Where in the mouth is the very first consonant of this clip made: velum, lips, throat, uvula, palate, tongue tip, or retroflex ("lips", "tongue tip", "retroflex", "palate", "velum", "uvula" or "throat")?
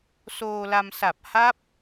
tongue tip